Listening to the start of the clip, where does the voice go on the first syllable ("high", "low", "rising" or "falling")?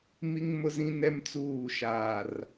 high